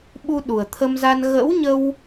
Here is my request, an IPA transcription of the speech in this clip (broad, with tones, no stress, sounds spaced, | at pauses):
ɓ u˧ ɗ u˨˩ ə̯ t̪ʰ ə˧ m z a˧ n ɣ ə̰˧˥ w ɲ ə˧ w